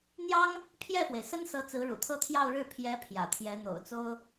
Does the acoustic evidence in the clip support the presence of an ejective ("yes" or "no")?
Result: no